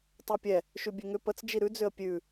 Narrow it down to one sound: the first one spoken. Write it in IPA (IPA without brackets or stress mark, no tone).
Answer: tˤ